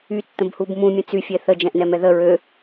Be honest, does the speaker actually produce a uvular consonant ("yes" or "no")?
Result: no